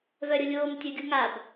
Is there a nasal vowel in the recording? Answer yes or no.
no